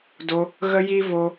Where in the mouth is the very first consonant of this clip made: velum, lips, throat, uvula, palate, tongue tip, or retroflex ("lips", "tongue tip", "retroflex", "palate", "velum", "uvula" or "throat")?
tongue tip